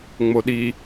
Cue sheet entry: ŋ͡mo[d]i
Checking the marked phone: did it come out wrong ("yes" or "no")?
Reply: yes